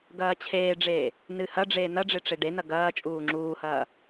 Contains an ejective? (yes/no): yes